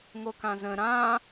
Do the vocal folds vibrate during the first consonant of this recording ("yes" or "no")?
yes